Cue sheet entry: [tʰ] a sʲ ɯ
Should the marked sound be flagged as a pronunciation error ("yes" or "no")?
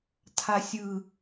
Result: no